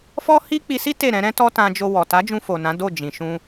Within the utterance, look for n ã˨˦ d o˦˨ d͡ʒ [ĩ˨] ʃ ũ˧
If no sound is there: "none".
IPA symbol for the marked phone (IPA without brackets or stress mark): ĩ˨